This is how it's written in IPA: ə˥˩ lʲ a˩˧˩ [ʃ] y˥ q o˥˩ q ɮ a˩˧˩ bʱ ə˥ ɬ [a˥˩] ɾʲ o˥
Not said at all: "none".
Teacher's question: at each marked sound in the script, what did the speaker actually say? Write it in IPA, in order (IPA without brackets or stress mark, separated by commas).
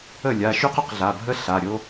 ʃ, a˩˧˩